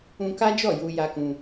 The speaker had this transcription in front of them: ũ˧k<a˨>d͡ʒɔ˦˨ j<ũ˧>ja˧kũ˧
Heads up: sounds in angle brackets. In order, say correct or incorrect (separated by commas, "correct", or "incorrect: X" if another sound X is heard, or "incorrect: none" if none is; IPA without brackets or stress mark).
incorrect: a˦, incorrect: u˧